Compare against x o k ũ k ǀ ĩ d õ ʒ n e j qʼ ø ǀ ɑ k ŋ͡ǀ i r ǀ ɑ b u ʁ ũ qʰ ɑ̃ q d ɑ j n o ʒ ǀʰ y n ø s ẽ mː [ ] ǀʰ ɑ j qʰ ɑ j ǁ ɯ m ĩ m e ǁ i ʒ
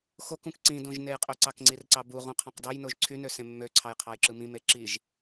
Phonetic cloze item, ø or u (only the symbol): ø